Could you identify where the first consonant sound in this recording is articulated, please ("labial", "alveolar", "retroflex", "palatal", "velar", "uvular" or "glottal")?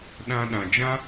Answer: alveolar